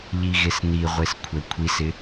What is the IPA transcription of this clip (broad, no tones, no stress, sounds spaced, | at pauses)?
ʎ i ɣ e s n i ʁʷ e s kʷʰ ɛ kʷʰ i s ɪ